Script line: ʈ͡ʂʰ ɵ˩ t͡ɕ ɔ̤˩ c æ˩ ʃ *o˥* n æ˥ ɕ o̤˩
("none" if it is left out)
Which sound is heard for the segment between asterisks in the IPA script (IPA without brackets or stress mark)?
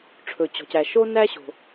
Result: o˥